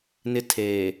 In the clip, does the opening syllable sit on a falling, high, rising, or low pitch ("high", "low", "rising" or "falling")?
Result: high